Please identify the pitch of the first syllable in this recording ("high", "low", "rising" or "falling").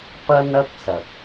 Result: high